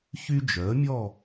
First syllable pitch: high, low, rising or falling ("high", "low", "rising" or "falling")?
high